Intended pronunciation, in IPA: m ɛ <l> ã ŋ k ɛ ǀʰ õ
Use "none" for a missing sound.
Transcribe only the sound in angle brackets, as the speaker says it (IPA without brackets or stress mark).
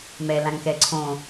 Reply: l